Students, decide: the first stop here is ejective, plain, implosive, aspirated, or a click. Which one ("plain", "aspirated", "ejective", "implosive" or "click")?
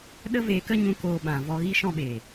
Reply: implosive